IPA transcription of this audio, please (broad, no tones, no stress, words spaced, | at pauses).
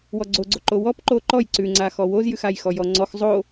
wɔɡ͡ǀoɡ͡ǀo ǃowɔp ǃoǃɔj ǀʉŋ͡ǀaxɔ wozjʉxaj xɔjɔŋ͡ǀɔx zˤo